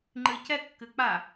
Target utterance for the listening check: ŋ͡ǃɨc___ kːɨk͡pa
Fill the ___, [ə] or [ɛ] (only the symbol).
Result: ɛ